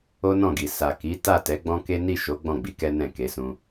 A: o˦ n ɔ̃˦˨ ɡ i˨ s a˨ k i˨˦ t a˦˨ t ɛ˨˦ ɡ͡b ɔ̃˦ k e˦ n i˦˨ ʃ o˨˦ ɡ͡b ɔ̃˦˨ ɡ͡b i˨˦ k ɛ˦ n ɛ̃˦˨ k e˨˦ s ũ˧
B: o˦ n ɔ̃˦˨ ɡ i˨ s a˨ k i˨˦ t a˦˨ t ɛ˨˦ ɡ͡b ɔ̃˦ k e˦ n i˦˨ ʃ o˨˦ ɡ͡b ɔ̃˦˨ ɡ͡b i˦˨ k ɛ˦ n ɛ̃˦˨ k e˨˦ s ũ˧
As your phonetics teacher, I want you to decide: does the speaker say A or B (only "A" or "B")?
A